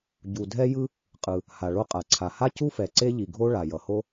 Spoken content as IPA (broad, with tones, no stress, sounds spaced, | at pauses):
ɟ u˩ dʱ ɛ˥ j ɯ˥ | qʼ ɯ˩ | h a˩ ɭ o˥ qʼ a˩ ǀʰ a˩ h a˥ c u˥ f ɛ˩ ǀ e˥ ʎ i˩ ɡʱ o˥ ɭ a˩ j ʌ˩ h o˥